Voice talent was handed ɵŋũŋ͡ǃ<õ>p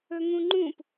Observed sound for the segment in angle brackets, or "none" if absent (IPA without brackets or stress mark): ũ